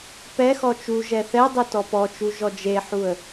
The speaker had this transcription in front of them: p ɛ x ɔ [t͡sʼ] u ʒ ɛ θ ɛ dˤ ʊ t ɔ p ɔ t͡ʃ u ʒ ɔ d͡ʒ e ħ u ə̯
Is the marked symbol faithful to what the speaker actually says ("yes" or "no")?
no